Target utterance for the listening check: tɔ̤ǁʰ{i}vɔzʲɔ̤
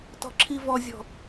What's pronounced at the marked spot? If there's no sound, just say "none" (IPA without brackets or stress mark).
i